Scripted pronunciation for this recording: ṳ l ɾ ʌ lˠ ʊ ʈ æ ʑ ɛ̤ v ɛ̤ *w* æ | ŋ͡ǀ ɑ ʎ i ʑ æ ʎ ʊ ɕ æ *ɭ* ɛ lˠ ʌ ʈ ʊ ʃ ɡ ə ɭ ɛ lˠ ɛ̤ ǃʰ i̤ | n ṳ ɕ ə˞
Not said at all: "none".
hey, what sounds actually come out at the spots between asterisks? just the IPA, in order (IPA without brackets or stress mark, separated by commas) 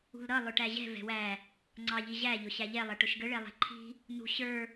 w, ʎ